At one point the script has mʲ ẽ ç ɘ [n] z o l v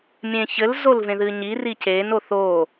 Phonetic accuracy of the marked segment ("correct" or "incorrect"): incorrect